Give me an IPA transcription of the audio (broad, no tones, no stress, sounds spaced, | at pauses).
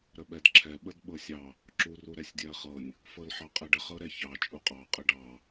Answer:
ɾ ə ɓ ɛ d ǁʰ ɛ ɓ ə d ɓ ɤ sʲ ɑ | ǁ u r u ɾ ɛ sʲ dʲ ɛ ɐ̯ χ ɤ nʲ | f ɤ l ħ ɑ qʼ ɛ ɖ ə χ ɤ ɾ ɛ ç ɑ t͡ʃʼ u qʼ ɑ qʼ ə ɖ ɑ